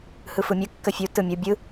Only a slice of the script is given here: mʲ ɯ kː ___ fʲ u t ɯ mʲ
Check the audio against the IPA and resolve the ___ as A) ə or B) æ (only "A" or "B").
A